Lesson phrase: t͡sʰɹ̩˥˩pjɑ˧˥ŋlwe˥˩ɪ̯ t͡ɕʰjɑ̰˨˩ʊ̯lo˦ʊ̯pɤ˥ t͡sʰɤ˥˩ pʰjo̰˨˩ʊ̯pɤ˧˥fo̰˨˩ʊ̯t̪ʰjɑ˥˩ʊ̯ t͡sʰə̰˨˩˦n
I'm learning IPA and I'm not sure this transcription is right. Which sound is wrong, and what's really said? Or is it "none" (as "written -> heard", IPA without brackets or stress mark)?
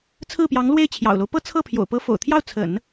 none